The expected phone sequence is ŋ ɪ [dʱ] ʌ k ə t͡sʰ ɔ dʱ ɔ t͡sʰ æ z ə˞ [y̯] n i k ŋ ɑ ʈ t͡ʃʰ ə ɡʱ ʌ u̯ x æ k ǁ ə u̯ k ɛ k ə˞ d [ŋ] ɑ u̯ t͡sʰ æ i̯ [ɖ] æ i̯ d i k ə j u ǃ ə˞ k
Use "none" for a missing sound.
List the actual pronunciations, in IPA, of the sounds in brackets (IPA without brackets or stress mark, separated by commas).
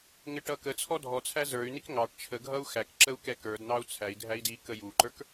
ʈ, y̯, n̪, dʱ